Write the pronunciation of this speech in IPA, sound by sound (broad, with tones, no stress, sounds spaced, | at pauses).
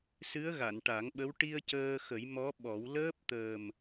s ɨ˧˥ ə̯ ɣ a˨˩˨ n ʈ a˨˩˦ ŋ ɓ ə˧˥ w ʈ i˧ ə̯ c əː˧ x ə˨˩˦ j m ɔ˧˥ ɓ ɔ˨˩˦ w l əː˦˥ p̚ t̪ əː˨˩ m